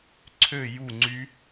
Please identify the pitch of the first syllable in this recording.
falling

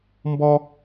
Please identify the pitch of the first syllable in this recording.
high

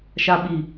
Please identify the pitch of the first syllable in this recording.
low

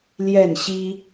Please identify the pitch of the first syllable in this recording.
falling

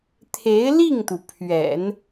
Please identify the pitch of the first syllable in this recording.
rising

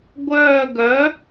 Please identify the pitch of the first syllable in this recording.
falling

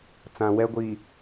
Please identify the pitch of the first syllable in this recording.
low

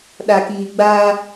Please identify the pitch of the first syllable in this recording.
low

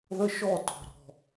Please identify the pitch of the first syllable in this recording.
high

